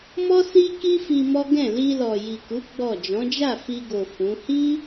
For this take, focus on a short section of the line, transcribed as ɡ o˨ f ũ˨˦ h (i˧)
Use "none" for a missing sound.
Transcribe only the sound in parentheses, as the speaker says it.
i˦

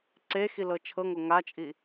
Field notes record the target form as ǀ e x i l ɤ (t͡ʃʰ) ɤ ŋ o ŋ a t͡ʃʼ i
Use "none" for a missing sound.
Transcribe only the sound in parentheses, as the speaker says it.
t͡ʃʰ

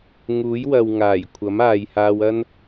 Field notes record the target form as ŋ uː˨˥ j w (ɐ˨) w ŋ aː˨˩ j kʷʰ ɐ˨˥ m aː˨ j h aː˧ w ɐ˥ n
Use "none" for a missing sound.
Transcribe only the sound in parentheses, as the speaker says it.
ɐ˨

